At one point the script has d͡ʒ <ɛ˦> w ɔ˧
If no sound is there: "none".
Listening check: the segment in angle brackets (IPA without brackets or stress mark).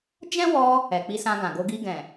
ɛ̃˦